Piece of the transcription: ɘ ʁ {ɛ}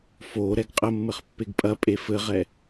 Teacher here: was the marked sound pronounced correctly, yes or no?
yes